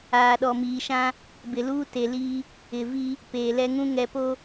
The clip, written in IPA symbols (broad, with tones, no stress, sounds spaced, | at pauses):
aː˨ ɗ ɔ˨ m iː˨ ʃ ã˦ | b ɪ˨ l uː˦ t e˨ l iː˦ | ɪ˨ v i˦ | p eː˨ l ɛ˦ ŋ ũ˦ ŋ ɛ˨ p o˦